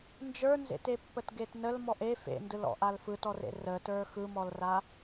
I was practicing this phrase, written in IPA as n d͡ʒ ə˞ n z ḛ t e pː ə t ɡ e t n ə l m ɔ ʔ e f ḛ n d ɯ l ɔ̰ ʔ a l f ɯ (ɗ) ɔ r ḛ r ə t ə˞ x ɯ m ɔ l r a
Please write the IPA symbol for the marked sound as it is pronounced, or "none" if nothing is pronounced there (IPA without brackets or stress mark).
t